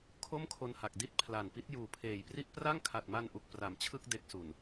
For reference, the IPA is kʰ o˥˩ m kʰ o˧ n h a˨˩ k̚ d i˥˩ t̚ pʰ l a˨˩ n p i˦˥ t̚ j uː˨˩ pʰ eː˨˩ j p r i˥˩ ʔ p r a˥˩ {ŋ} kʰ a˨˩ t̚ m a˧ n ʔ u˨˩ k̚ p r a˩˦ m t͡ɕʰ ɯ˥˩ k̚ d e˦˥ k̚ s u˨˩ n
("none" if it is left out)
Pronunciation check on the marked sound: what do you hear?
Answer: ŋ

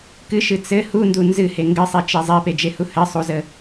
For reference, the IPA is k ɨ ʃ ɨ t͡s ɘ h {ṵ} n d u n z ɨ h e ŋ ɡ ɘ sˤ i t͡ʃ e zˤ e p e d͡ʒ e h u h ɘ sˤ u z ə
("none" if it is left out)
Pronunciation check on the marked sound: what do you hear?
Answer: u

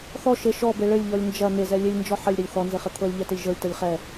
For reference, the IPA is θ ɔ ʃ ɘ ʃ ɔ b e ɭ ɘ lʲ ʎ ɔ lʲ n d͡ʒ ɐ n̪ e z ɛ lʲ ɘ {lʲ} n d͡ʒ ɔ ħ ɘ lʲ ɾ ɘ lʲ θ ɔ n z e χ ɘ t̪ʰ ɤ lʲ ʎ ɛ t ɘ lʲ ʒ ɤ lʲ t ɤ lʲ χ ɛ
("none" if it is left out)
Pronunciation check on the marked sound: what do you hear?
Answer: lʲ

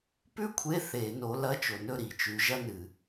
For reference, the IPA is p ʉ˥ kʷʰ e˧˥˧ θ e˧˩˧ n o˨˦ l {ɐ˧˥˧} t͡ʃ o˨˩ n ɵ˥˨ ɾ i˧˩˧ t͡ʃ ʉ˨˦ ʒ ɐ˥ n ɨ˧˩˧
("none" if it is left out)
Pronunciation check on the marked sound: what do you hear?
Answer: ɐ˧˥˧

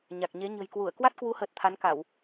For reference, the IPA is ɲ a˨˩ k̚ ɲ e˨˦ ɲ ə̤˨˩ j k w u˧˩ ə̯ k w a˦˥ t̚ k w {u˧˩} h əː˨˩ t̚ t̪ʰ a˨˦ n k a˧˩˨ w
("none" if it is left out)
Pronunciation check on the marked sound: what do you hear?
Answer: u˨˦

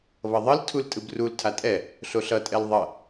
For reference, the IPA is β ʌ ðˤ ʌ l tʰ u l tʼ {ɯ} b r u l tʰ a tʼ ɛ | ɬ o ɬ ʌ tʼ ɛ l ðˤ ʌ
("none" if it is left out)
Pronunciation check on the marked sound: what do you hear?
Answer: ɯ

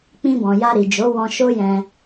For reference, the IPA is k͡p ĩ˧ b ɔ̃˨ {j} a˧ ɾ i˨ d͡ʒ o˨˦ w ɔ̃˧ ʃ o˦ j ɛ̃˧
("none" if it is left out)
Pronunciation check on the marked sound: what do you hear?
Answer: j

